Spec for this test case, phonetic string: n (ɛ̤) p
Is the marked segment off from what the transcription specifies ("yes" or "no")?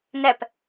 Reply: yes